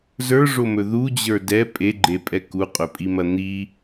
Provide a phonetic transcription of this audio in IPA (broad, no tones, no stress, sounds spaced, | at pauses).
z ə˞ ʐ o m ɵ ð u d͡ʑ ə˞ d ɛ pʼ e ɡ͡ǃ e pʼ ɛ k u qʼ ɵ pʼ i m ɐ n̪ i